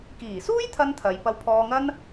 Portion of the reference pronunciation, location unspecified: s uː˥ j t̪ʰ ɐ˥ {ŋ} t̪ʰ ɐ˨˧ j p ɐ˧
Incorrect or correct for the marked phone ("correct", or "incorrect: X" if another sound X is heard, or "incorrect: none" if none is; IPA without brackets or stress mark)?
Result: incorrect: n